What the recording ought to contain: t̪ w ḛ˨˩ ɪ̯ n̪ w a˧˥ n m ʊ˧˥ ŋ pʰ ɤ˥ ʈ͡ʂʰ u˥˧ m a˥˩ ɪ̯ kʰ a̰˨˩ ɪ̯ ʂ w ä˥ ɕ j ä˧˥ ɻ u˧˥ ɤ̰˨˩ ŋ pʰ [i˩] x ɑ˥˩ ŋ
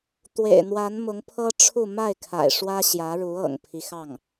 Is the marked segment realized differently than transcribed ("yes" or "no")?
yes